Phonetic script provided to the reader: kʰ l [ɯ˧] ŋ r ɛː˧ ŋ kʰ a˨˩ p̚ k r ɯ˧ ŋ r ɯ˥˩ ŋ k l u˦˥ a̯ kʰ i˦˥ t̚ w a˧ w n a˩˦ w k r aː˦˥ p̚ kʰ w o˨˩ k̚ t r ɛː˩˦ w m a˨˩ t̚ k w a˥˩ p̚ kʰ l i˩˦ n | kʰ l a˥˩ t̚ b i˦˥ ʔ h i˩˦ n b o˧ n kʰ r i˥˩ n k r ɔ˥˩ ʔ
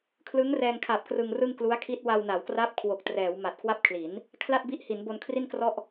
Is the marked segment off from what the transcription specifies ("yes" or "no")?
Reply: yes